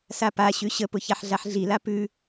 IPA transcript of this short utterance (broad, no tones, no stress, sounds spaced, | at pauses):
s a p a ɕ ʉ ɕ ə p ʊ ç a ħ ɮ a ħ ɮ i l a p ʉ